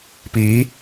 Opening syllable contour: rising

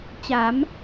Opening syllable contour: rising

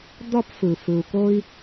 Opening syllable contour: high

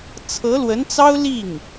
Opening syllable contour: rising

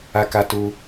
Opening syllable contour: high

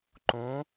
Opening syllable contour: rising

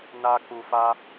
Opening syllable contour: high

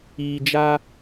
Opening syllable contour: low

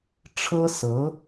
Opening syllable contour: high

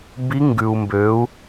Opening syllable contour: rising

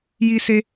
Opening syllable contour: high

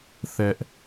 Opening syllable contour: high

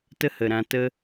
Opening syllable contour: high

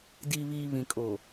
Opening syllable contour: low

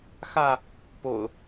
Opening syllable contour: falling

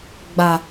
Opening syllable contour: high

